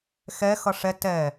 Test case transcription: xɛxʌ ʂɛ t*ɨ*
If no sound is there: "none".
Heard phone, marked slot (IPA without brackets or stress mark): ɛ